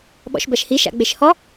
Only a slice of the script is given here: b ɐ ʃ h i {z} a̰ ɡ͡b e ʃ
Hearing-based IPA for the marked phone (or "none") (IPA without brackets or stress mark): ʃ